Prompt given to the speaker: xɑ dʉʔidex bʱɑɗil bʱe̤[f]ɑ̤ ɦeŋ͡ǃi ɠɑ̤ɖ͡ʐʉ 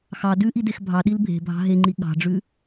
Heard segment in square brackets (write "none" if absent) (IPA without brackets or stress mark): bʱ